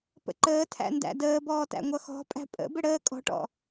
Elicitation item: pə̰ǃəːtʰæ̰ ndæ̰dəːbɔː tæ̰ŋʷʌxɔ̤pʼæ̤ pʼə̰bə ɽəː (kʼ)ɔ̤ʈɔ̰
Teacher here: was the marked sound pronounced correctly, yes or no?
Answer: yes